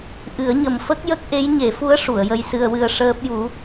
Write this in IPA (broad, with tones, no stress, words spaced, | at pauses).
ʔɨ˨˩˦ə̯ɲə˨˩m fə˦˥k̚jə˦˥k̚ʔe˧˥j ɲe˨˩˦fu˧˥ə̯ ʂu˨˩˨ə̯jə˧jsɨ˧ə̯wɨ˧ə̯ ʂəː˦˥p̚ju˧˥